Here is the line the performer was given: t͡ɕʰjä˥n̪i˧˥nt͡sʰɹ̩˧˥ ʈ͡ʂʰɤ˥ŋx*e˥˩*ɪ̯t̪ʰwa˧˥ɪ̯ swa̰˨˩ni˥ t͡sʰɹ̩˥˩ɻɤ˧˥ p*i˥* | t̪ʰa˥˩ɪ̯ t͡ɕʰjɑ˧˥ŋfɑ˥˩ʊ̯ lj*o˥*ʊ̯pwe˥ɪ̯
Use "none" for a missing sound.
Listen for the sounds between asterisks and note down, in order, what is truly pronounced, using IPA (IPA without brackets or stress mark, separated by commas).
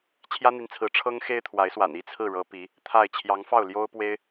e˥, i˧˥, o˥